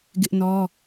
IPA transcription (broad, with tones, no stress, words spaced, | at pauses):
ɡɪ˦ʔnɔ˦